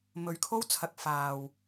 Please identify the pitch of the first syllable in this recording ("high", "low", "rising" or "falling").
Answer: low